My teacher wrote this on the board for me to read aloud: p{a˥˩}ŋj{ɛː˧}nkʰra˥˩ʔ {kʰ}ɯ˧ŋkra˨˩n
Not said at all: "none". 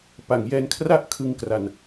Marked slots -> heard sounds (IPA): a˨˩, ɛː˧, kʰ

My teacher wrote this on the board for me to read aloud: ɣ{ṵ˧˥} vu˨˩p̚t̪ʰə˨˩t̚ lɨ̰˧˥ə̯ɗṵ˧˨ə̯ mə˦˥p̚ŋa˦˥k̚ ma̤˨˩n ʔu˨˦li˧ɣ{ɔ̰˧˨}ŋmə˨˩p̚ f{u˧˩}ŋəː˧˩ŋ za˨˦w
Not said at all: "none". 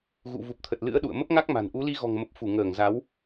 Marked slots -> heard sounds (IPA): ṵ˧˨, ɔ̤˨˩, u˧˩

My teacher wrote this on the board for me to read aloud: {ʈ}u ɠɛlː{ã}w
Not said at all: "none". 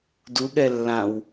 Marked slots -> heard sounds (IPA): d, ã

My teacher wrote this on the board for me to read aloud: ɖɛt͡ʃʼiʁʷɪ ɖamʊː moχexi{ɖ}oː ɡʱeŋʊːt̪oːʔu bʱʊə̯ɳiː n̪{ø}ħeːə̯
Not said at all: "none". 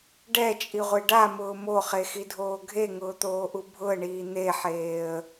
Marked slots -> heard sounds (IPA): dʱ, e

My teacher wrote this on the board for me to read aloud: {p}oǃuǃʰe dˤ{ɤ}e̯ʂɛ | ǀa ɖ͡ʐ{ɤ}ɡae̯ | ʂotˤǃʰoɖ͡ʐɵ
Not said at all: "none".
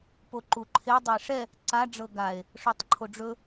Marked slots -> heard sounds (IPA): p, ɵ, ɤ

